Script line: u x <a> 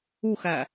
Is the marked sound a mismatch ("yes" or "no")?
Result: yes